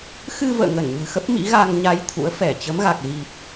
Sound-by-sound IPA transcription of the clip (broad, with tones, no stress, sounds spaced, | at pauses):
x ɨ˧ v ə̰ː˧˨ ŋ ə˧˩ n ɲ ɨ̤˨˩ x ə˦˥ p̚ m ḭ˧˥ ɣ a˧ ŋ ɲ a˧ j t̪ʰ ṵ˧˥ ə̯ f ɛ˧˩ t͡ɕ ə˨˦ m ɣ a˨˩ k̚ ɣ i˨˩ p̚